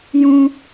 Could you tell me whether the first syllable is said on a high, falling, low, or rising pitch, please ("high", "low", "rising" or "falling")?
high